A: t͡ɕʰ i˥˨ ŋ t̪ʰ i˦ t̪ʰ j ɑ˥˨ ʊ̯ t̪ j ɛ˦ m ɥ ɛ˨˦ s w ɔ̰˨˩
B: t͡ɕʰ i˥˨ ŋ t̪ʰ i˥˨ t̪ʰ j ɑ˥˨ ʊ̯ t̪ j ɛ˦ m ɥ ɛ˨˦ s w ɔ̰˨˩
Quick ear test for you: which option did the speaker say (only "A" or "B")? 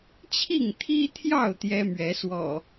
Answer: A